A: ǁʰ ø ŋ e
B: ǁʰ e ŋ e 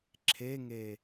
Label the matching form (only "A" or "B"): B